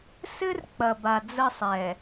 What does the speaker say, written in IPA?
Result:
s ɘ˦ r k͡p ɐ˨ b a˨ d͡z ə˦˨ sˤ ɛ˨

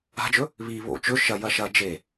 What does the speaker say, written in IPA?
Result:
a̤ d͡ʒ ɵ | β i β o̰ t͡ʃ ɵ ʃ ɐ j ɐ ʃ ɐ d͡ʒ e

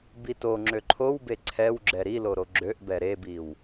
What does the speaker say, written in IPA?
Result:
b i t o ŋ͡ǁ ø ǃʰ o w b e ǀʰ ɛ w ɡ͡ǁ ɛ ɾ i l o ɾ o ɡ͡ǁ ø ʔ b ɛ ɾ e b i w

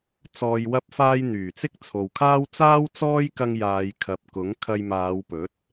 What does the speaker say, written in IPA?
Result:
t͡s ɔː˨ j w ɐ˧ p̚ f aː˧ j n̪ yː˨˩ t͡s ɪ˥ k̚ t͡sʰ o˨ w kʰ aː˥ w t͡s aː˥ w t͡s ɔː˥ j k ɐ˧ ŋ j aː˨˧ j kʰ ɐ˨ p̚ k ʊ˨˥ ŋ kʰ ɐ˧ j m aː˨˧ w p ɵ˨˥ t̚

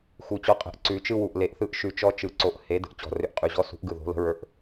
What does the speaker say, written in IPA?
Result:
x u˨˩˦ t͡ɕ ɔ˨˥ qʼ ə̤˨˥ ʔ ǀ ʉ˨˩˦ t͡ʃ ɯ˦ w u˨˩ ʔ l e˨˩˦ ʔ θ ɯ˨˥ ʔ ʃ ʉ˨˩ t͡ʃ ɔ˦ t͡ʃ ɯ˨˩ ǀ o˨˥ ʔ h e˨˥ d ə̤˨˩ ʔ t͡ɕ ɔ̤˨˩ r ʏ˨˥ ʔ qʼ ʉ˨˩ ʑ ɔ˨˥ s ṳ˨˥ ʔ ɡ ɯ˨˩ ð o̤˨˥ l ə̤˨˥ ɹ ə˞˨˥ ʔ

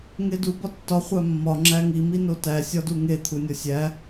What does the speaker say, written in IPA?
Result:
ŋ e d u b ɒ tː ɒ χʷ æ mː ɒ ŋ͡ǁ æ ŋ i m i n o t æ sʲ ɒ d u ŋ e t̪ʰ u nʲ ɒ sʲ æ

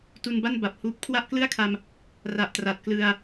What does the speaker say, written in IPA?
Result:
t u˧ n b a˥˩ n b a˨˩ p̚ h uː˦˥ p̚ kʰ w a˥˩ ʔ k l ɯ˥˩ a̯ kʰ a˧ m | r a˨˩ ʔ t r a˨˩ t̚ k l ɯ˧ a̯

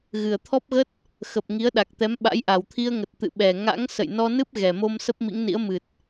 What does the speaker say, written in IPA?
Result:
ɣ ɨ˨˩ ə̯ t̪ʰ ɔ˦˥ p̚ ɣ ə˦˥ t̚ | x ə˨˩ p̚ ŋ i˨˦ ə̯ ɗ a˨˩ k̚ t̪ ɛ˨˦ m ɓ a̰˧˥ j ʔ a˨˩ w t̪ʰ i˧ ə̯ ŋ ə˨˩ t̚ t̪ ɨ̰˧˨ ɓ ɛ˨˩ ŋ a̰˧˥ ŋ s ə̰˧˨ j n ɔ˧ n ɨ˦˥ p̚ ɣ ɛ˨˩ m o˧ m s ə˦˥ p̚ m ḭ˧˥ ŋ n ḭ˧˥ ə̯ m ɨ˨˩ t̚

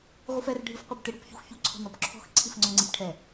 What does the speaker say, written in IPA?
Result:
ʁʷ ɨ f ɛ r ɖʱ ɨ f qʷ ɨ b t ɨ ɽ u p ç ṳ x ç u ǀʰ ɔ̤ n ɔ b ǁʰ ɔ̤ x ǀʰ i f ŋ͡ǀ ɔ ŋ͡ǀ i p ʈʰ ɛ

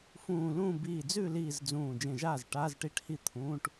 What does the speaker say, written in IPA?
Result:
f ũː˧˩ l ũː˥˩ b iː˧˩ d͡z ʉ˥˩ l iː˧˩ z d͡z ũː˧˩ d͡ʒ ẽ˧˩ ʒ aː˥˩ z ʈ aː˧˥˧ z ʈ i˧˥˧ ʈ h i˥˩ t̪ʰ ũː˧˥˧ ʈ

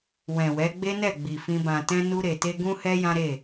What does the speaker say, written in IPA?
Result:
w ɛ̃˨ w ɛ˨˦ ɡ͡b e˦ n ɛ˦˨ ɡ͡b i˨ f ĩ˧ b ã˨ t ɛ̃˧ n u˧ ɾ e˨ t e˧ ɡ ũ˦ h ɛ˦ j ã˦ ɾ e˦˨

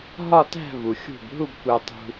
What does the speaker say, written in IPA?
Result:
ɦ ɒ˥˧ t æ̤˥˧ v u˩ xʲ ṳ˧˩ b ɦ u˥˧ b kʷ æ˧ tˤ ṳ˧

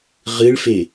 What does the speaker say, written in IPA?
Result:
ʁ ɨ ɭ f e

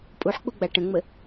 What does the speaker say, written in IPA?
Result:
pʼ u ħ k͡p u ɡ͡b a ʈ ə̃ ŋ͡m ə

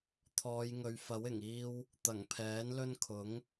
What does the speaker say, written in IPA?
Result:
t̪ʰ ɔː˨˧ j ŋ ɵ˨ ɥ f ɐ˨˥ w ɪ˨˩ ŋ iː˧ w | t̪ ɐ˨˩ ŋ pʰ ɛː˨˥ n l ɵ˥ n kʰ ʊ˨˥ ŋ

